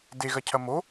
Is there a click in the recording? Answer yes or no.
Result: no